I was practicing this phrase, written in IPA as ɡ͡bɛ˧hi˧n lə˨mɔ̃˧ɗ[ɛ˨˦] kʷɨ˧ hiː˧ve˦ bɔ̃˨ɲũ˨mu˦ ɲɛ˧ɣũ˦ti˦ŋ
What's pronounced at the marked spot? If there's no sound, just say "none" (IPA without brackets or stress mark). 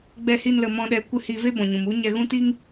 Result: ɛ˨˦